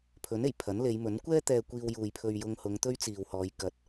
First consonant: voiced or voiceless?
voiceless